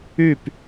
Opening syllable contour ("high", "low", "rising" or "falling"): falling